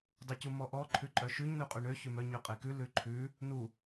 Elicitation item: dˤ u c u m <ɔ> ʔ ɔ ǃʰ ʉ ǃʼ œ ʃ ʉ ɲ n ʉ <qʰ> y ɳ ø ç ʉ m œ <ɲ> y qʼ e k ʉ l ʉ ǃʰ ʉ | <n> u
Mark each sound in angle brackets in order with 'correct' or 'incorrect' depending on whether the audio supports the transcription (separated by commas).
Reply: correct, incorrect, correct, correct